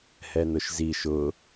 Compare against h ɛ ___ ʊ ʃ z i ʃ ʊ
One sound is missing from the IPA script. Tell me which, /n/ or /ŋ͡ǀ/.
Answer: n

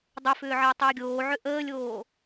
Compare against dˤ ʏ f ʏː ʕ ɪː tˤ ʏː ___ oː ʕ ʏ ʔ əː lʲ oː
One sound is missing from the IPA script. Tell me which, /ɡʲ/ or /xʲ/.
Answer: ɡʲ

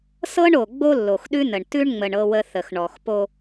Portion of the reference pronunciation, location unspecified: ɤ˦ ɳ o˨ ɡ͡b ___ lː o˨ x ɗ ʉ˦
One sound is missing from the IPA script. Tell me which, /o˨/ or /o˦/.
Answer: o˦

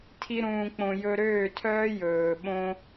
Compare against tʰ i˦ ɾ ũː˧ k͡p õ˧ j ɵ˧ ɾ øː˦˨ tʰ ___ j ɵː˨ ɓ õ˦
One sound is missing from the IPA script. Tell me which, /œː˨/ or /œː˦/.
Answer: œː˦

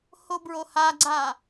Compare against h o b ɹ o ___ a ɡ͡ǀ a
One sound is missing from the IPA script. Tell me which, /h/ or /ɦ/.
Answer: h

